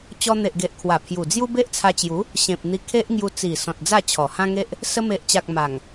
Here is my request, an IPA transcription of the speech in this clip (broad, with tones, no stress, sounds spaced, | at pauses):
t͡ɕ ɔ˧ n̪ e˨ ʔ ɡ e˨ ʔ kʰ w a˨˩ pʰ j u˨˩ d͡z j u˦ b e˦ ʔ t͡sʰ a˧ t͡ɕ j u˨˦ | ɕ ẽ˨ p̚ n̪ i˧ kʰ e˦ ʔ ŋ j u˧ t͡s i˨˩ s ɔ̃˨ t̚ d͡z a˥˧ t͡ɕʰ ɔ˨˩ h ã˦ ŋ e˦ ʔ | s ə˧ m e˨ ʔ t͡ɕ a˨ k̚ m a˨˩ ŋ